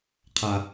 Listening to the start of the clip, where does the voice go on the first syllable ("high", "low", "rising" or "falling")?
low